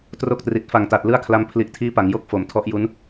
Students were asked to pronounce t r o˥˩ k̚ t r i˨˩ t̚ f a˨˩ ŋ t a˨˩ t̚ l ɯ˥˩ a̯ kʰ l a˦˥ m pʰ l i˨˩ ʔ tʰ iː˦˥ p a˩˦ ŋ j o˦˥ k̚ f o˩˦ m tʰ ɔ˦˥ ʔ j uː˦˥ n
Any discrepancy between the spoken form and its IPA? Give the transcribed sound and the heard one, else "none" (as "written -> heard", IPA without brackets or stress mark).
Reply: uː˦˥ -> u˦˥